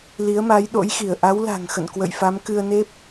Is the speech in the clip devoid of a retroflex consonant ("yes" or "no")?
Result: yes